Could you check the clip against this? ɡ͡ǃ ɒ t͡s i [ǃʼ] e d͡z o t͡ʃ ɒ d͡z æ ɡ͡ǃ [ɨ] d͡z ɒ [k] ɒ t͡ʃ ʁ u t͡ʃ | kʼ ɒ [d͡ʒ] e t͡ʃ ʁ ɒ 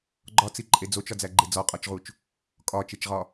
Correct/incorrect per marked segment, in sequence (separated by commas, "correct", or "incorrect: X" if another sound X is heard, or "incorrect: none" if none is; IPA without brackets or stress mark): correct, incorrect: e, incorrect: qʼ, incorrect: t͡ʃ